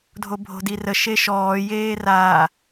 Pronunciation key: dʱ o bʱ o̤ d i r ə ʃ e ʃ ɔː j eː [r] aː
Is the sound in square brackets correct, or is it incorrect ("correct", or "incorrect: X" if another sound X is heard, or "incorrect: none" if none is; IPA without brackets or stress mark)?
correct